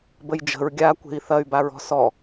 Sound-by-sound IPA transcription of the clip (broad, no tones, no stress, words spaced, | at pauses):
bəjd͡ʒə̤ɹ ɡʲakʷe̤i̯ θɐy̯baɹɔ̤ sɔ